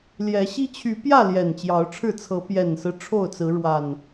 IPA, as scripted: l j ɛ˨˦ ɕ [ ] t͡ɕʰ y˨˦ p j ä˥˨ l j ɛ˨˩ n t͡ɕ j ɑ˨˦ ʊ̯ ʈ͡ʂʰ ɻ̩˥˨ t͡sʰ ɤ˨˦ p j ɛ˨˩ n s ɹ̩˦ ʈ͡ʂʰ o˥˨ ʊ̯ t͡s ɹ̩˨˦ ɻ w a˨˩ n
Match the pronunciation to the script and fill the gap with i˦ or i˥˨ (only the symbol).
i˦